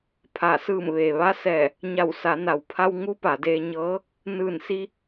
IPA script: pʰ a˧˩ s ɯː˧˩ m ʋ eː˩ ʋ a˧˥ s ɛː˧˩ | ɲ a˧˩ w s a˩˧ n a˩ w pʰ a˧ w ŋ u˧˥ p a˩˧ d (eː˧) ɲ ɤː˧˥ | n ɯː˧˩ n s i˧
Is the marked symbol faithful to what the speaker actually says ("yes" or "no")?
yes